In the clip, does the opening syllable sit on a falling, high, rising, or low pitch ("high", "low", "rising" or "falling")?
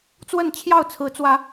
falling